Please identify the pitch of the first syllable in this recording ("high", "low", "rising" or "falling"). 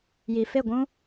low